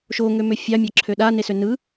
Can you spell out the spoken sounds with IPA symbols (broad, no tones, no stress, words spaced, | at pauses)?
ʃoŋømø fʲɑmʲɑ ǁʰøɗa nesønɯ